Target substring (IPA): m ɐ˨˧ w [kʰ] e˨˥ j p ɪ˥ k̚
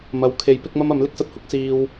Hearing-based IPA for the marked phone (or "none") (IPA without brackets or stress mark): kʰ